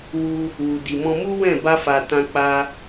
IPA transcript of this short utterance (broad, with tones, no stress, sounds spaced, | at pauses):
w u˧ | w u˨ d i˨ m ɔ̃˧ m u˦ w ɛ̃˦˨ b a˧ f a˨ t ã˧ k͡p a˧